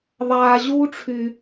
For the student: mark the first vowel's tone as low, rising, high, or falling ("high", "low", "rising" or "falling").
low